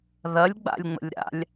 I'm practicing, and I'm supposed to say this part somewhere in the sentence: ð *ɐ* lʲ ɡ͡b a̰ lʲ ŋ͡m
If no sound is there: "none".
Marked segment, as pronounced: ɐ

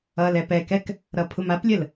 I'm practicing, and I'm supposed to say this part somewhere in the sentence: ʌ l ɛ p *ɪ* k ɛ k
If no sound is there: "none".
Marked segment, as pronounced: ɛ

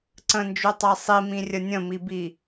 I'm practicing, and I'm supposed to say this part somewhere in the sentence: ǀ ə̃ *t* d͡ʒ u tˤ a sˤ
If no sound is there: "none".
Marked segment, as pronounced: n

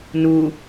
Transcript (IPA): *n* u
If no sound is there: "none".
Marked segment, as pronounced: n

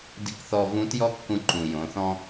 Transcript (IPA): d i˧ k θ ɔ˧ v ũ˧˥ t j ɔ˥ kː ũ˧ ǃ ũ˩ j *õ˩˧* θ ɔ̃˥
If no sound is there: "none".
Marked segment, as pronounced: õ˩˧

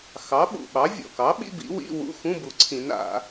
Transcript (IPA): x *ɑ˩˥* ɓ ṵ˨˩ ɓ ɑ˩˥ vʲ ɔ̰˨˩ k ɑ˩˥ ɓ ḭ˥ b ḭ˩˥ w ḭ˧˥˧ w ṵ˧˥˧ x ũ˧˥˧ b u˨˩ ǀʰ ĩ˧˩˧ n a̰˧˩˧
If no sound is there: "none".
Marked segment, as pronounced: ɑ˩˥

